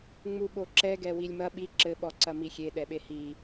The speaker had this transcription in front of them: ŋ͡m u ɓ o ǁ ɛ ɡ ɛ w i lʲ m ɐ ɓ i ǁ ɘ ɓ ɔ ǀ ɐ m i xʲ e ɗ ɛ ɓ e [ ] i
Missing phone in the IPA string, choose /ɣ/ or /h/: h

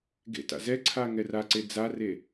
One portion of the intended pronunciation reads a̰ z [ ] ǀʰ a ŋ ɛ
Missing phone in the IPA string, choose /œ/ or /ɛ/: ɛ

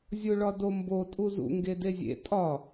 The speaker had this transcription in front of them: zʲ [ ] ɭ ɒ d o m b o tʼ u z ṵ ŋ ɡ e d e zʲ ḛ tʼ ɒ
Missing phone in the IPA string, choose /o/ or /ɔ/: o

